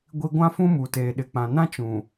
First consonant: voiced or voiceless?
voiced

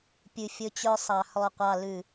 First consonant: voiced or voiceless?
voiceless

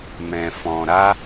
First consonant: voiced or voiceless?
voiced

